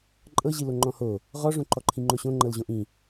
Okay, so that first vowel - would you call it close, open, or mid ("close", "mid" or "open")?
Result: mid